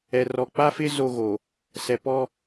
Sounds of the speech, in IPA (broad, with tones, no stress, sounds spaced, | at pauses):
ɛ˨ r ɔ˨ k͡p a˦ f ɪ˦ z o˦ ɣ o˨ | s ɛ˨ p ɔ˦